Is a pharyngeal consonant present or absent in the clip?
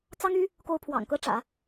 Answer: absent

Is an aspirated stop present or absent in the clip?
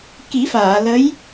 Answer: absent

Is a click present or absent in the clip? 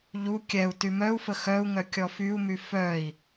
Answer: absent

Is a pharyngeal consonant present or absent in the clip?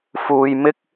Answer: absent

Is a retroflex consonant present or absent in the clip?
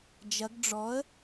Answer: present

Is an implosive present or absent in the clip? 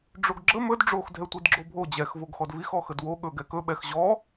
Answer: present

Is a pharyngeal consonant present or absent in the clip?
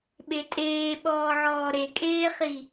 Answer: present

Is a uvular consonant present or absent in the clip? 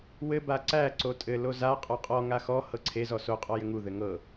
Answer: present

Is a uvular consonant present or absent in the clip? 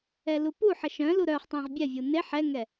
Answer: present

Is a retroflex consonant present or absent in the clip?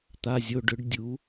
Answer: present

